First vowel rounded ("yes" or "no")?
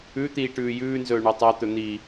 yes